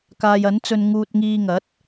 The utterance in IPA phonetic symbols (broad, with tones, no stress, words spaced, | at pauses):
kaː˨jɐ˨˥nt͡sɵ˧n ŋuː˧t̚ŋiː˧ŋɐ˨˥t̚